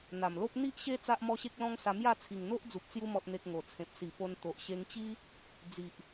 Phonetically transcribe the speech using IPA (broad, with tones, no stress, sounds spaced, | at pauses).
n̪ a˨˩ m l o˦ p̚ n̪ i˦ ʔ ɕ e˦ t͡s a˦ ʔ m ɔ˦ ɕ e˦ k̚ l ɔ̃˦ ŋ s a˧ m j a˥˧ t͡sʰ i˨˩ ŋ n̪ o˦ ʔ d͡z u˨ p̚ t͡s j u˧ m ɔ˨ t̚ n̪ e˨ k̚ ŋ o˨˩ t͡sʰ ẽ˨ p̚ s i˨˩ p o˧ n t̪ o˨ ʔ ɕ e˧ ŋ t͡ɕ i˦ | d͡z i˨ ʔ